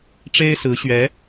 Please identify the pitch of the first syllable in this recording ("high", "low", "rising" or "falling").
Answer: high